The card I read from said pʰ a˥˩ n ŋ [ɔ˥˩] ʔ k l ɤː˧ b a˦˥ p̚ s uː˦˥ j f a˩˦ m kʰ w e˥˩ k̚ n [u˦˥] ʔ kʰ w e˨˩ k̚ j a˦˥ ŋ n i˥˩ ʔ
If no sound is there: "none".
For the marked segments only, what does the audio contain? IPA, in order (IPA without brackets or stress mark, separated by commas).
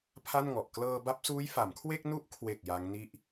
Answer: ɔ˨˩, u˦˥